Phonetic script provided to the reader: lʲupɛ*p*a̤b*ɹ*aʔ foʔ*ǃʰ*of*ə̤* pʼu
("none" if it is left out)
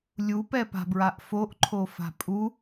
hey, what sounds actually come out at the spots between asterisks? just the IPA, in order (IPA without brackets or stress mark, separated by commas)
p, ɹ, ǃʰ, a̤